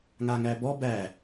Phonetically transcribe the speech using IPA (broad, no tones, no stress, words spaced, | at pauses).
ŋaŋæbɔ bæ